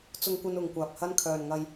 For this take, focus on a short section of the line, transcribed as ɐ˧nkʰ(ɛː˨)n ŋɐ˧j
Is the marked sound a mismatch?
yes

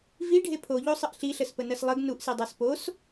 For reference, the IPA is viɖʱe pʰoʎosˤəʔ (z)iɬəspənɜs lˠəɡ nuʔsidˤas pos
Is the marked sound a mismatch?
yes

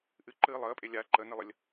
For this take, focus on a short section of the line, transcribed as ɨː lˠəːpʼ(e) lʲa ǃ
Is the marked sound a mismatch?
no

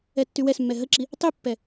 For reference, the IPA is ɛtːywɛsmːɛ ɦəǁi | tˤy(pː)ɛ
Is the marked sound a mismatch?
no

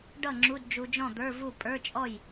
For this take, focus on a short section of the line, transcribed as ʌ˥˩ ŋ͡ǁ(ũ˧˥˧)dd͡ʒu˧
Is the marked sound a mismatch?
yes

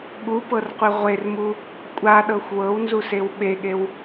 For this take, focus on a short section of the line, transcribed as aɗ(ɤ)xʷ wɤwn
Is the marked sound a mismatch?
no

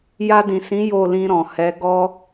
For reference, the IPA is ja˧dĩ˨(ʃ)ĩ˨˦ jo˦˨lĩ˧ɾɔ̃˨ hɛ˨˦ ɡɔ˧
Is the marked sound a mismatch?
yes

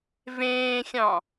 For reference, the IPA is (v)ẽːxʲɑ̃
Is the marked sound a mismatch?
no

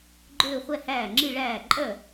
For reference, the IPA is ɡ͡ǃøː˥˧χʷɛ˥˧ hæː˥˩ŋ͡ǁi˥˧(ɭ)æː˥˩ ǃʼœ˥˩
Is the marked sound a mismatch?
no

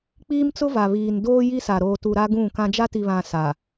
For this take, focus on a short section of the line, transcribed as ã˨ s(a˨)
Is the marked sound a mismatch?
no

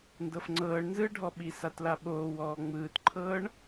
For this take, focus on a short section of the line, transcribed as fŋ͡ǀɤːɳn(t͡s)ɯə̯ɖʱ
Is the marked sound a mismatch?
yes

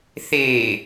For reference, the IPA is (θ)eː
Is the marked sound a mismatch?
no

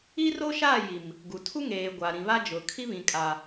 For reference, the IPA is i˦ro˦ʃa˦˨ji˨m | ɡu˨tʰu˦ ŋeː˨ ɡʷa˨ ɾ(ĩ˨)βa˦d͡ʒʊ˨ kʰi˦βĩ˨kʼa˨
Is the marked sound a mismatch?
no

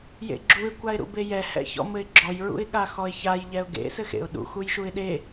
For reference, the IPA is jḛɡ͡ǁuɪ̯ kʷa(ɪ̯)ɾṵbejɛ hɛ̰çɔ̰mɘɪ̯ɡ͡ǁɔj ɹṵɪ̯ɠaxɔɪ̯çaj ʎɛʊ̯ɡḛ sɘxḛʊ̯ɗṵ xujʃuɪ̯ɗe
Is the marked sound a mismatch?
no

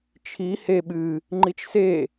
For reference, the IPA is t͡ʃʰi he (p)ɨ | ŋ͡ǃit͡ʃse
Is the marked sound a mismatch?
yes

